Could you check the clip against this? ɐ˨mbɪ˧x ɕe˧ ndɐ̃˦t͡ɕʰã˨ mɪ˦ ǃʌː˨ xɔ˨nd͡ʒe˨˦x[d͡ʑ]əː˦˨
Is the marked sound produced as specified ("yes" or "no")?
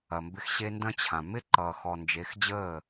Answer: yes